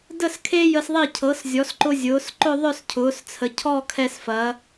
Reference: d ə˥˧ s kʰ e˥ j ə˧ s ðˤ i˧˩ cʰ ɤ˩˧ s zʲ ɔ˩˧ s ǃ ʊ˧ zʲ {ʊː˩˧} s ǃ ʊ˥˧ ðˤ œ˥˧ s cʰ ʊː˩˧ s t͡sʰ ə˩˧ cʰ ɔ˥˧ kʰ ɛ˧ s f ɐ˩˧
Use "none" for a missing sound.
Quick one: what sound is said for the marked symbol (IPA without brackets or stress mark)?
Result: ʊː˩˧